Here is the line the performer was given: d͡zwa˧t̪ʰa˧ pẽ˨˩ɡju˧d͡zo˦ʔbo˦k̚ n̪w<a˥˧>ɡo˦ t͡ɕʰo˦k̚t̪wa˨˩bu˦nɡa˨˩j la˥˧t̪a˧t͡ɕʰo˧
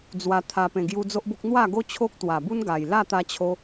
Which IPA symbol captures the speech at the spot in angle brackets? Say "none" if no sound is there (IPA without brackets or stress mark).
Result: a˥˧